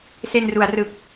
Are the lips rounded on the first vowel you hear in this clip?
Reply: no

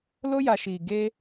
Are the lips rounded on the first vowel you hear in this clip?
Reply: yes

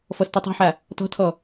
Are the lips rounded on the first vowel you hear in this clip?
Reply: yes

